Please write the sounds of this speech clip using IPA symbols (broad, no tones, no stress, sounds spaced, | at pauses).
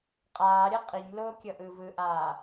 qʼ aː ɾʲ ɤ qʼ i ɲ l oː kʲ ɤ ʔ ɯː v ɯ ʔ aː